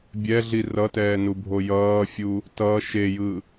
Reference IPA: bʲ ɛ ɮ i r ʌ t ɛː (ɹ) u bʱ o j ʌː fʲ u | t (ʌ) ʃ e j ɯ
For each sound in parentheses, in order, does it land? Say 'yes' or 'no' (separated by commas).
no, yes